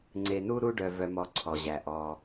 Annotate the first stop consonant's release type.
click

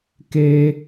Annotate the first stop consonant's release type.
plain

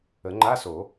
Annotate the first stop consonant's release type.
click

